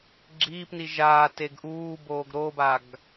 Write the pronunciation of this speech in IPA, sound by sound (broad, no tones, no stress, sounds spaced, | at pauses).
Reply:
ɡ͡ǁ iː p n i ʒ aː t e ɡ ʔ uː b oː ɡ ɾ o b a ɡ